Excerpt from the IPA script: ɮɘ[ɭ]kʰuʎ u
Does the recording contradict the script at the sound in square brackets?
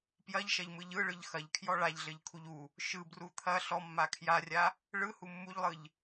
yes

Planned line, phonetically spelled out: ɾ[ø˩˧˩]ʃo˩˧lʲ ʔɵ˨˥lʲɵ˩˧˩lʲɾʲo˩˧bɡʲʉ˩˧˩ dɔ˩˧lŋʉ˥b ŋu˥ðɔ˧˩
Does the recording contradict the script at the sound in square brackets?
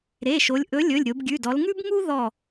yes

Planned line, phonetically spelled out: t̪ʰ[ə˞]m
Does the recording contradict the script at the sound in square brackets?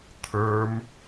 no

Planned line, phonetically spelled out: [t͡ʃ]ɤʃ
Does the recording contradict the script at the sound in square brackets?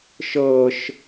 yes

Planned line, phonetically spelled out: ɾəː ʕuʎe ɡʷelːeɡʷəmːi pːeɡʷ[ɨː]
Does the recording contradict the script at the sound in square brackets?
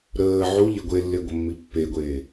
yes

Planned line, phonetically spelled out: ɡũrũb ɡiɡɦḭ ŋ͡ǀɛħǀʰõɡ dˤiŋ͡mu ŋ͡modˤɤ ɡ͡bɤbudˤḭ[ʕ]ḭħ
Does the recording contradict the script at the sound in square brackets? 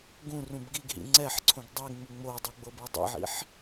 no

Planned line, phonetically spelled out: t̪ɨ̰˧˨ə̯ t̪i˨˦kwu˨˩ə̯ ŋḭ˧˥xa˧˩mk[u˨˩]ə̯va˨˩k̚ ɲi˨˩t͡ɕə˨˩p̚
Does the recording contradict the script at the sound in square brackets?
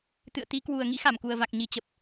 no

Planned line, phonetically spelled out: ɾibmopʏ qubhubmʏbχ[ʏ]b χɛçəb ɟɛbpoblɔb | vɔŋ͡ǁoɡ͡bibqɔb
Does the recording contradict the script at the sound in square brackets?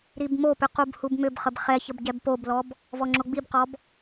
yes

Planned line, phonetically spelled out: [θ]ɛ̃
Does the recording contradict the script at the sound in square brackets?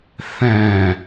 no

